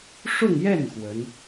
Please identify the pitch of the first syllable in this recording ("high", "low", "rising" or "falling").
falling